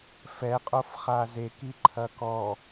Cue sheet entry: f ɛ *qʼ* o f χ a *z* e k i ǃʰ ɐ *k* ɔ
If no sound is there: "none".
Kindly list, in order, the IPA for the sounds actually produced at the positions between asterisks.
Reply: qʼ, z, k

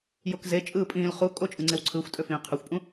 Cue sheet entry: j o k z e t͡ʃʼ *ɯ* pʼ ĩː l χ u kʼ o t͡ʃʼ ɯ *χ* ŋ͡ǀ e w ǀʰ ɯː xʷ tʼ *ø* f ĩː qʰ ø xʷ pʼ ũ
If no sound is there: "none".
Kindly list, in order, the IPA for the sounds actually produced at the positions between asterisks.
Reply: ɯː, none, ø

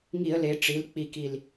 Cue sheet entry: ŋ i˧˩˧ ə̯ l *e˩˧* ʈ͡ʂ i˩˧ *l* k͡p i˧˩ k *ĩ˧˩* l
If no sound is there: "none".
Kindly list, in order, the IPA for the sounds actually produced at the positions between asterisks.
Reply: e˩˧, l, i˧˩

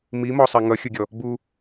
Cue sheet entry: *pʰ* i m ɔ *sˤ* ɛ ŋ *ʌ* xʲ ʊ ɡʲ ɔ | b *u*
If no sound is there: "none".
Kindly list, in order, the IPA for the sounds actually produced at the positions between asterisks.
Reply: m, sˤ, ʌ, u

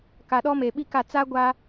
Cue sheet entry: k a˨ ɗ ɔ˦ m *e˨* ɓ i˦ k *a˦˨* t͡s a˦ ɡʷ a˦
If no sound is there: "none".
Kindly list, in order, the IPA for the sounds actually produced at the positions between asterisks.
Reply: e˨, a˦˨

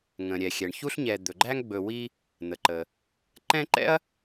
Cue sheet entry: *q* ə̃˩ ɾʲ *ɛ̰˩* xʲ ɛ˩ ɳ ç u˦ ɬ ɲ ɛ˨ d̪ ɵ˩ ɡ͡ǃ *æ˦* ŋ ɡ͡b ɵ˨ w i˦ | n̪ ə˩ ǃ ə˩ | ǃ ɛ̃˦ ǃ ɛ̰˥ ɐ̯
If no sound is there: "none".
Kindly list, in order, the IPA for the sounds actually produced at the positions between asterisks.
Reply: ŋ, ɛ˩, æ˦

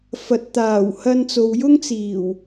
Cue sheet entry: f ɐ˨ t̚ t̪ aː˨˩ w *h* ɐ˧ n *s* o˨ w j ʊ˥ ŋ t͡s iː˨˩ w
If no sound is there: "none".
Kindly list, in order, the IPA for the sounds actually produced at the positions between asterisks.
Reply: h, t͡s

